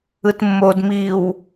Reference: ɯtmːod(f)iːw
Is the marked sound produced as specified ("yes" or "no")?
no